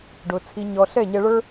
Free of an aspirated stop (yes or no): no